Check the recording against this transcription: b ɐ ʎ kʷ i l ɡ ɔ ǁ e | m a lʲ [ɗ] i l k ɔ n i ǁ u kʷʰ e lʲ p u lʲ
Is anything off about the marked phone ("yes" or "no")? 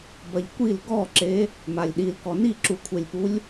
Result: no